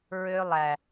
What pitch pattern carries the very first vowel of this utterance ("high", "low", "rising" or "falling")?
high